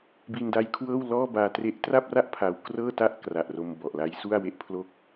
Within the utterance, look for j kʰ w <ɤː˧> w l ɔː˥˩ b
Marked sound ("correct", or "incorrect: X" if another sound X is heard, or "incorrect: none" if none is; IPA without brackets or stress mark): incorrect: ɤː˥˩